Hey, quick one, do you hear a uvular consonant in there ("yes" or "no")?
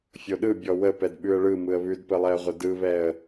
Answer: yes